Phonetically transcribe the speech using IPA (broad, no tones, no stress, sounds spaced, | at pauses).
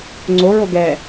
ŋ͡ǀ o ɹ o ɡ ɛ